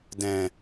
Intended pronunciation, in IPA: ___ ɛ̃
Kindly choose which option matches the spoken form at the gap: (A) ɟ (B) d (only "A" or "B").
B